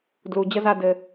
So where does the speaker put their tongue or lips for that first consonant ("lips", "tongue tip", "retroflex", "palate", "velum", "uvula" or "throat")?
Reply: tongue tip